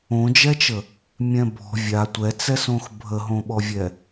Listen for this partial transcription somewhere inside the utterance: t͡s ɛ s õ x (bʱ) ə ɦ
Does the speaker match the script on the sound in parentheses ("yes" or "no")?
yes